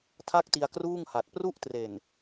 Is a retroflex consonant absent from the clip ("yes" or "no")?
yes